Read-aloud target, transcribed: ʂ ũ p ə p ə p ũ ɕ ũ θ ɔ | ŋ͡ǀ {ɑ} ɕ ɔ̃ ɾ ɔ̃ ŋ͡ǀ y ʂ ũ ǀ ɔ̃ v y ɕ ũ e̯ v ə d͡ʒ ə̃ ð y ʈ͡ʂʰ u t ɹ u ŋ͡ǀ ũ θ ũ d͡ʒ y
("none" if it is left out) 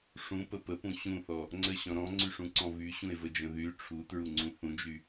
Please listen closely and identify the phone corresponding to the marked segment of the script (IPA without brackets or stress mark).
ə